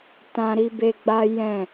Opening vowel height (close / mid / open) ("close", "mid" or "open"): open